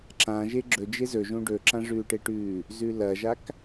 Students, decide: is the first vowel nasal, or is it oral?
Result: nasal